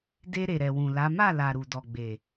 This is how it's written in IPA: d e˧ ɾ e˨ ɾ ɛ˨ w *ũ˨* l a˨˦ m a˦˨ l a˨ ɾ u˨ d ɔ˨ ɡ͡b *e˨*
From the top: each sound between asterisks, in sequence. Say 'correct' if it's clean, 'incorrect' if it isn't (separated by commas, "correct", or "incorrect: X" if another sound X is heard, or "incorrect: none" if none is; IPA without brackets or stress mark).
correct, correct